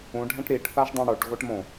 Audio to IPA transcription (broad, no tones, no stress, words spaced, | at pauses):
ũɖʱɛ̃ʈ ɾiʈθaʒdˤũ ɽoʈ ɣoʈmõ